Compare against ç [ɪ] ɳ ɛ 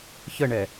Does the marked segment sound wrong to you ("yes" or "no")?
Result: yes